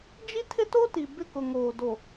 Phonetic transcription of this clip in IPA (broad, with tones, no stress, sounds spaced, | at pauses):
d͡ʒ i˦ tʰ ɪ˦ t o˦ t i˨ b ɪ˦˨ k ʊ˨ ŋ oː˨ d o˨